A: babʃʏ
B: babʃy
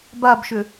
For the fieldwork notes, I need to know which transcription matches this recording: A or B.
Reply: A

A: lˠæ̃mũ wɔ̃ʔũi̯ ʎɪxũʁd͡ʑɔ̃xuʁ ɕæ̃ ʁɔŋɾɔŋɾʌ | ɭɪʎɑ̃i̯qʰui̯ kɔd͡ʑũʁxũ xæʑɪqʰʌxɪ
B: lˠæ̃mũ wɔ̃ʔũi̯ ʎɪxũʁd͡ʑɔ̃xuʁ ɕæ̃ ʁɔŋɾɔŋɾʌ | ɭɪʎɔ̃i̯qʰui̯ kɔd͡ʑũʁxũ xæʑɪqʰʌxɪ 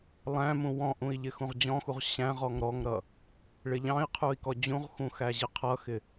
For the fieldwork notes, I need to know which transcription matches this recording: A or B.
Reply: A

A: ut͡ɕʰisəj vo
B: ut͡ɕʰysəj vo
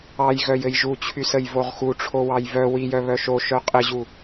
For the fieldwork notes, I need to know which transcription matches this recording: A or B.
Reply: B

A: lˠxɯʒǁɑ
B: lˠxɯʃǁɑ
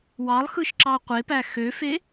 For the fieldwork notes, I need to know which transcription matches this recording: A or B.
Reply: B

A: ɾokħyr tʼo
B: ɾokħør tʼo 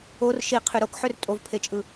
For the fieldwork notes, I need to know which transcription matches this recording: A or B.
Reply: B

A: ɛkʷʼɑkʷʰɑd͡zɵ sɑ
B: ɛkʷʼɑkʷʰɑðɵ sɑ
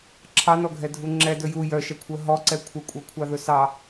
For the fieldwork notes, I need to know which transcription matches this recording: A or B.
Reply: B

